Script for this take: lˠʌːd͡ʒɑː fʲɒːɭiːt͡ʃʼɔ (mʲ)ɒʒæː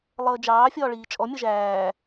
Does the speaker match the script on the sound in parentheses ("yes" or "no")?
yes